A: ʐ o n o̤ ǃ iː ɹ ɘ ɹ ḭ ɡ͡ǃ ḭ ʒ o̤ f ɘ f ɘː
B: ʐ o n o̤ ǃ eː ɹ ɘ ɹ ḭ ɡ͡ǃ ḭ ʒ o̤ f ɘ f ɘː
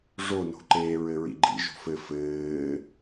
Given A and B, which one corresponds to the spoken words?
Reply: B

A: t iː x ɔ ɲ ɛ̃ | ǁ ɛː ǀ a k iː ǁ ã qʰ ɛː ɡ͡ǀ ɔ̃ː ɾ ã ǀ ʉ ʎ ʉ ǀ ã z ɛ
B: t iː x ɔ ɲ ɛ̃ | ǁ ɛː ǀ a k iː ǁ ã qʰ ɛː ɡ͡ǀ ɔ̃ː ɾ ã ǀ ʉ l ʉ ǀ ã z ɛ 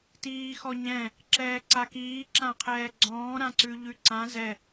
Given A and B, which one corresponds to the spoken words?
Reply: A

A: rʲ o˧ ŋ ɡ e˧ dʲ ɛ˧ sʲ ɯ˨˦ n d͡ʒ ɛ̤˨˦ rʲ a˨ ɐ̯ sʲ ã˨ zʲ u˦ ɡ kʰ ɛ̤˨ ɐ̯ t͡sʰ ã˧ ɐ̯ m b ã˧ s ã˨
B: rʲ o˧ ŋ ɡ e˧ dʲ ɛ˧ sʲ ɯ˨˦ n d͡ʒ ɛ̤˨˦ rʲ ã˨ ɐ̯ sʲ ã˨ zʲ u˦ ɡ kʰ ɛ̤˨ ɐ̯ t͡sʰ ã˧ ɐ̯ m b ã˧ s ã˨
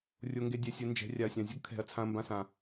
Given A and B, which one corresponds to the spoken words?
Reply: A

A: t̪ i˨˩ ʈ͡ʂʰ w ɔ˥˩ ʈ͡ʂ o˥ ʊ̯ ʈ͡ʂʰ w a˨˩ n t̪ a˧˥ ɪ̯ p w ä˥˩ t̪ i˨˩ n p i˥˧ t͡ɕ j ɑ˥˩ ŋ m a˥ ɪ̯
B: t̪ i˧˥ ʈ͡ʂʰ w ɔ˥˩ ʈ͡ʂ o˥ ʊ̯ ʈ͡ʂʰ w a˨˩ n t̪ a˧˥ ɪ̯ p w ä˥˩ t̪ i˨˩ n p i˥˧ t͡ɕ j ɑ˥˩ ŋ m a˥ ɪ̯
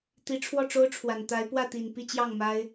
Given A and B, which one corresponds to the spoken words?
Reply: B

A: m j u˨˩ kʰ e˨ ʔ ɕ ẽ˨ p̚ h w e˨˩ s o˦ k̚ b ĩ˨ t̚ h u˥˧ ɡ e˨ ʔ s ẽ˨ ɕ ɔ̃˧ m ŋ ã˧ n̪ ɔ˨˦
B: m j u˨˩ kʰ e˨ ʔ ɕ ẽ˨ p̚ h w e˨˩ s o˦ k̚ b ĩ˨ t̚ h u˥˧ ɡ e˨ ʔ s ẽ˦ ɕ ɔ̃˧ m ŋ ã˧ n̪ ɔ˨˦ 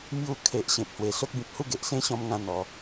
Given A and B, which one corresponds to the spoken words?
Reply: B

